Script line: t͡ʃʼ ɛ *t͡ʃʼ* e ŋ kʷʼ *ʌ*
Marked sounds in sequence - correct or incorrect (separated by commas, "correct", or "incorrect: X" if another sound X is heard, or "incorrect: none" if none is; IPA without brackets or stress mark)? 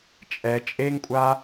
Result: correct, incorrect: a